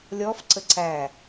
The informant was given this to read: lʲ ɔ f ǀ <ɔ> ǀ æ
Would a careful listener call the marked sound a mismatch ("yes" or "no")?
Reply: yes